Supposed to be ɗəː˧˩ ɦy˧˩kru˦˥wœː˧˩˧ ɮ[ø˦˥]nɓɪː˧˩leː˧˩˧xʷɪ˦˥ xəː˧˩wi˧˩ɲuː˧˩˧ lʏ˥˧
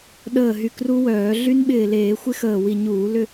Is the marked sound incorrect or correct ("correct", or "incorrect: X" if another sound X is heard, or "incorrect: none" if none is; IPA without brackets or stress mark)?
incorrect: y˦˥